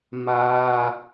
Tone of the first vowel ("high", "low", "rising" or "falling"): high